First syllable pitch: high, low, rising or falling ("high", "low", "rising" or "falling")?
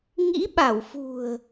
rising